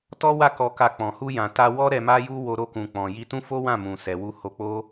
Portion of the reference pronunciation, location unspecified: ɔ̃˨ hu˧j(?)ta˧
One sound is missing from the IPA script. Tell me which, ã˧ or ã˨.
ã˨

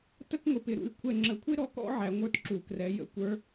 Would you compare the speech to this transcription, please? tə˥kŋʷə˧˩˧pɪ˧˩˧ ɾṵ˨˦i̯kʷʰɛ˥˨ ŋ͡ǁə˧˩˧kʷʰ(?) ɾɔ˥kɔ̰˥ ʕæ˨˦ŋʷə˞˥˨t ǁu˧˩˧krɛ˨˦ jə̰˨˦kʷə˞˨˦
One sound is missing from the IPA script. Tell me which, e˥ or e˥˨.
e˥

